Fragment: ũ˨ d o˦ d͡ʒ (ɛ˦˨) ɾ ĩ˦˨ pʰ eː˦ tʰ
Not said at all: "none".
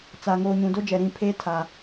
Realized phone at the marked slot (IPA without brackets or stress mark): ɛ˨